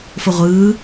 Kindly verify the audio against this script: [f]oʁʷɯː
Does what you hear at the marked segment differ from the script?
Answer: no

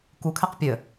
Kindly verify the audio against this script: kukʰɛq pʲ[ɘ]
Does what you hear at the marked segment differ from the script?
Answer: no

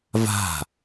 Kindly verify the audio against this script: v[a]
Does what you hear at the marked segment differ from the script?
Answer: yes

